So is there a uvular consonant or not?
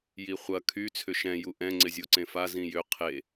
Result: yes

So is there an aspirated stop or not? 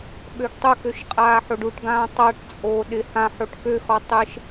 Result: no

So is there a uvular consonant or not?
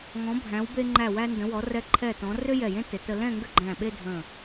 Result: no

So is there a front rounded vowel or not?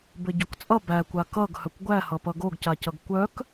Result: yes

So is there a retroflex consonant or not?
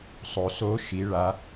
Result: yes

